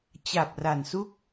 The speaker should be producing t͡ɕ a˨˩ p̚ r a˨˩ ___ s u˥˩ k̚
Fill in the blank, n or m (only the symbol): n